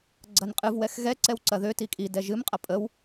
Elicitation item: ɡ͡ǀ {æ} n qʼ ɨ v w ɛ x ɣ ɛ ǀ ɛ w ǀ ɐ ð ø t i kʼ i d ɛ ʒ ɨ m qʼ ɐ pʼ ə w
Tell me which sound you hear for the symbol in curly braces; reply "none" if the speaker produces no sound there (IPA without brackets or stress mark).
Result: ɐ